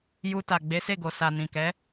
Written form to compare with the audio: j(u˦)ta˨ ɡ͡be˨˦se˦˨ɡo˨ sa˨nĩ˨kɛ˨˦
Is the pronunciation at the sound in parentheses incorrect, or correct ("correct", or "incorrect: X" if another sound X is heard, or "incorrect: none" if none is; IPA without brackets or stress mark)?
incorrect: u˧